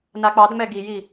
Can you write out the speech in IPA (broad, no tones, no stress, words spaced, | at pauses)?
nak͡pɑdŋ͡mɛ ɡiji